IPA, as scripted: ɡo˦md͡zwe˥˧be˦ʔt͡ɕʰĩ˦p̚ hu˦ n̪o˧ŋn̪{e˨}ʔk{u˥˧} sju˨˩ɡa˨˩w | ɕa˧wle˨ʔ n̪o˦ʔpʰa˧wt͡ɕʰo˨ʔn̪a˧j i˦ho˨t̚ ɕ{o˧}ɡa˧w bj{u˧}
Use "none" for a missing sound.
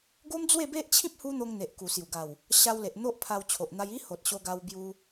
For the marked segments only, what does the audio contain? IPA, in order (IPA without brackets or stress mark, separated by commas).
e˨, u˨˩, o˧, u˧